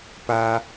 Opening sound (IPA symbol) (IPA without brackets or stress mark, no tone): p